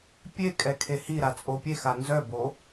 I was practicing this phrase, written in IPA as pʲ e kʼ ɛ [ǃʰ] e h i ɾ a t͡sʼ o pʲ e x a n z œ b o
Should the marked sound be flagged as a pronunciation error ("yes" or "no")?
yes